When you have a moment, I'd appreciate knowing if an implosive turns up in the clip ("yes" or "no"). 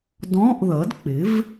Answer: no